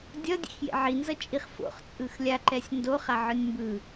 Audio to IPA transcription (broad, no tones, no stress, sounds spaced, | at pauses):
dʲ ʌ dʲ ḛ x j ḛ ʕ i n z ʌ t͡ʃʼ i χ f o̰ χ t͡sʼ ɯ x lʲ a ǃ ɛ sʲ n d o χ a ʕ ɯ nʲ m b ɯ